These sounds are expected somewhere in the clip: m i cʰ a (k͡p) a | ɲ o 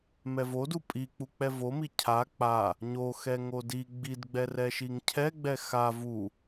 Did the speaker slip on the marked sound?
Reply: no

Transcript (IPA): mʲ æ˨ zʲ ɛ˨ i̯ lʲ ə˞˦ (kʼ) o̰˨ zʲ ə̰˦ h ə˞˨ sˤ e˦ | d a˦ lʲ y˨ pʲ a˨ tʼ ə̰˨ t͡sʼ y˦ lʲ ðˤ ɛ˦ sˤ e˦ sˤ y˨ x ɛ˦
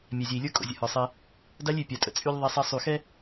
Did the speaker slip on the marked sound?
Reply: no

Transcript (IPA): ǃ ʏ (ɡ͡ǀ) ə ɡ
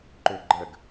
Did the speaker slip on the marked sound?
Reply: yes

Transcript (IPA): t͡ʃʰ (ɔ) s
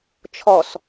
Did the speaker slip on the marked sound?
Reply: no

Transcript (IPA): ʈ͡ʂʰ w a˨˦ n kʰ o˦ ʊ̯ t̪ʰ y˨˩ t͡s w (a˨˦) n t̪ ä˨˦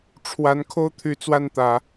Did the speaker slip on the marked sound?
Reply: yes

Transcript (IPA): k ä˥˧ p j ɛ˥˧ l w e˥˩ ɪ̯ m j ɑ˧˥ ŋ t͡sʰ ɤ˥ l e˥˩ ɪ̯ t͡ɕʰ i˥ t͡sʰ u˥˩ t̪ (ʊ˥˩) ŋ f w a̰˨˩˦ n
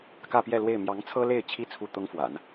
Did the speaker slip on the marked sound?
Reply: yes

